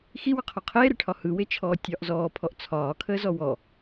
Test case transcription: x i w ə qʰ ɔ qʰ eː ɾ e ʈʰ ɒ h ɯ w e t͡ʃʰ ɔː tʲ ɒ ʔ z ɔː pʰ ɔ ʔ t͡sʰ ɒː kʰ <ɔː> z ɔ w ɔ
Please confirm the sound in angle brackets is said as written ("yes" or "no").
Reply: no